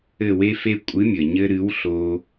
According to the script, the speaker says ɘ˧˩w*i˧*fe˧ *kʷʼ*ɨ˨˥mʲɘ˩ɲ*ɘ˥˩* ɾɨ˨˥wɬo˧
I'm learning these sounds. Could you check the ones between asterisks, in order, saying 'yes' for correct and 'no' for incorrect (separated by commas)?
no, yes, no